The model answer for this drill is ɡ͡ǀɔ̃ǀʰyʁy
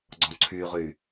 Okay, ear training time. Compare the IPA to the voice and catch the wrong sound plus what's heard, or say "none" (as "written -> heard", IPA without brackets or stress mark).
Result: none